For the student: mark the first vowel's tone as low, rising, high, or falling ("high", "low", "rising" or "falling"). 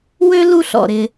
high